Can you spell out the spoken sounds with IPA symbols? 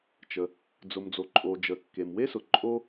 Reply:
t͡ʃə˩ | d͡zʊ˩md͡zo˩ǃʼo˩ d͡ʒə˩kːe˩mwe˥sʊ˩ ǃʼo˥

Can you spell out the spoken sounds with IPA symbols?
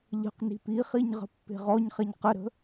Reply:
ʎə̤qni̤ piχiɲ ʁə̤pːe̤ʁɔɲχeɲ qəɾə̤

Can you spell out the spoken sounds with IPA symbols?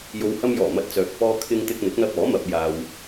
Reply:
jo˨˧whɐ˧mjɔː˨˩ mɐ˧t̚ t͡sœː˨k̚ fɔː˧ kʰɪ˧ŋ t̪ɪ˧k̚ n̪ɪ˨˥k̚n̪ɐ˧p̚ɔː˨˥ mɐ˧p̚jaː˧w

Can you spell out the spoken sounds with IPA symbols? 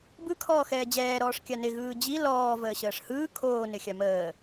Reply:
bɯkʰɔː xɛːd͡ʑɛːɾɔːʂ kʲanɪ ɣɯːd͡ʑi lɔː vəːɕəːʂhɯː kʰoːnɪ xʲaməː

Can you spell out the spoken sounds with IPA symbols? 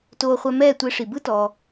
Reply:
toː˧χʷɛ˧ mɛː˥˩ tʷe˧ʂi˩bɯ˥tɔː˩

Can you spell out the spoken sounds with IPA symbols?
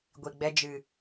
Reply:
ɡʷi˨ɡ͡bɛ˧ d͡ʒɨ˨

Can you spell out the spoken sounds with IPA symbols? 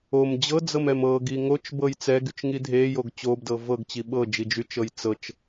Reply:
om d͡ʑɤd͡zɤmɛm ɤɡi ŋot͡ʃbɤj t͡sɛɡyt͡ʃŋi dʱejoɡ t͡ɕobdɤ vɤɡt͡ɕi ɓɤd͡ʒi d͡ʒyt͡ʃɤj t͡sɤt͡ʃ

